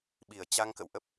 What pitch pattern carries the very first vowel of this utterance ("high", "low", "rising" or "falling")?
low